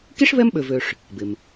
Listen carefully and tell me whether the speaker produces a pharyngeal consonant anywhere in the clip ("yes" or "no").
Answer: no